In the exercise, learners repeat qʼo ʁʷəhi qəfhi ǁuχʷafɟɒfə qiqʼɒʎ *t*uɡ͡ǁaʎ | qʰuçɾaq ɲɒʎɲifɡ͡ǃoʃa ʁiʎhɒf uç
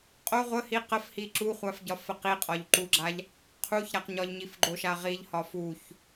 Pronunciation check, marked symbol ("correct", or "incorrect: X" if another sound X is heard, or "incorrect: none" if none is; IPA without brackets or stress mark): incorrect: ǃ